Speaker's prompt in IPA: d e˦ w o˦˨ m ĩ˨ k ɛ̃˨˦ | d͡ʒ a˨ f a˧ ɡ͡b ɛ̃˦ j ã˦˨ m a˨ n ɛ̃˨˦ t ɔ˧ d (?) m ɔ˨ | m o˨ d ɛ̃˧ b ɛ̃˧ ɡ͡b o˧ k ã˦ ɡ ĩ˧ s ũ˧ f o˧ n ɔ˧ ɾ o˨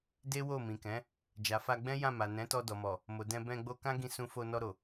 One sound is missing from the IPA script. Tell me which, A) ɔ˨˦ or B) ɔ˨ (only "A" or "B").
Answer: B